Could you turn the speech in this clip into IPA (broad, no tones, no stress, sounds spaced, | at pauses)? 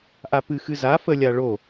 ʔ a p ɨ x ɨ z a f ə lʲ a ɭ o